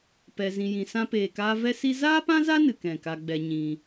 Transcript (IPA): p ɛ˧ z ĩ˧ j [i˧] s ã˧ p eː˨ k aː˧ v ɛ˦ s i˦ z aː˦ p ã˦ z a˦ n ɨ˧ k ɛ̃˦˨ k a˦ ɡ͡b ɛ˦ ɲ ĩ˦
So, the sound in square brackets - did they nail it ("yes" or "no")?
no